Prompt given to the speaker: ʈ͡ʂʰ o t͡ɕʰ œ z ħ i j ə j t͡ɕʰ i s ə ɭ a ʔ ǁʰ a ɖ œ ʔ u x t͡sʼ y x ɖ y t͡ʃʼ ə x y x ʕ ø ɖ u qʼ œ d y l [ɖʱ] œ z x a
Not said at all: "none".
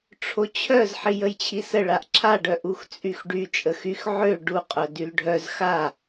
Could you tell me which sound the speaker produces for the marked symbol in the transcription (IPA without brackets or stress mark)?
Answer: ɖʱ